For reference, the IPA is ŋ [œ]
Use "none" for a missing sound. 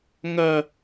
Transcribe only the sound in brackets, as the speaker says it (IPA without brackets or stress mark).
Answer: œ